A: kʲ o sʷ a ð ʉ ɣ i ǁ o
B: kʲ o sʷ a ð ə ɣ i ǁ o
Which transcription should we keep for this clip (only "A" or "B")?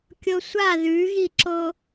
A